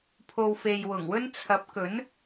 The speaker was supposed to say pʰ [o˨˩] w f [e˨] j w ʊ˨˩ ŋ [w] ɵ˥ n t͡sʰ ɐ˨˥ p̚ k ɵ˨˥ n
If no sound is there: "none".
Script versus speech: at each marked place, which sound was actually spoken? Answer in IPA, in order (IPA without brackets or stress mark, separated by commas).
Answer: o˨, e˨, w